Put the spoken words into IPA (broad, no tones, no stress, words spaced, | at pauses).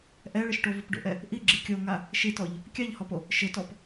ʔɛɭɪʃʈovup ɖo̰ʔɛ | ʔiɡ͡ǁi kʲoŋa | ʃitɔʎ | kʲaʎhɔpo | ʃɪtɔp